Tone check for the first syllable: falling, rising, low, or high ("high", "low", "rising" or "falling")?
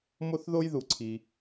high